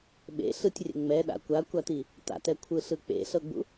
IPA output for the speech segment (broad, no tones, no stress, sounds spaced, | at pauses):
ɓ ḛ ɬ ɯ tʲ rʲ ɛ̰ ŋ͡m ɛ ɗ a̰ kʷ a kʷ a t i | t a̰ t ɛ kʷʰ ɯ ɬ ɯ k͡p ḛ ɬ ɤ ɡ͡b ṵ